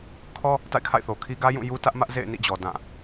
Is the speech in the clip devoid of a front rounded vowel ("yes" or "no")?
yes